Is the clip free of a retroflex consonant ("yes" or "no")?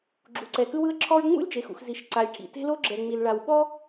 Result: no